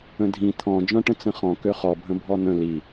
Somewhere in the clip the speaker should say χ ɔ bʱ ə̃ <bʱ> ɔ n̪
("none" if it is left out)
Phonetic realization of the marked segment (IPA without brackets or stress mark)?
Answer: bʱ